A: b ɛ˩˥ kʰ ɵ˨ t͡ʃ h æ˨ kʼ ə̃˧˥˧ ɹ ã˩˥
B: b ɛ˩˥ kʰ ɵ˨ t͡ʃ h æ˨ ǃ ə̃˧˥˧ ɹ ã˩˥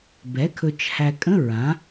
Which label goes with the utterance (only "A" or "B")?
A